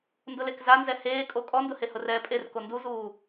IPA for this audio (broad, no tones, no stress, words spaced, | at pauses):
ndʊlekzanzɛ heːkʼo kʼɔndʊhe hʊrɛːpʼer konduzuː